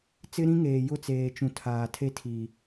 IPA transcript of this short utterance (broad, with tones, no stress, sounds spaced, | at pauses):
t͡s ɪ˦ ɾ ĩ˦ ŋ eː˨ j ʊ˦˨ t͡s eː˨ t͡ʃ ũ˨ tʰ aː˨ tʰ e˦ tʰ iː˨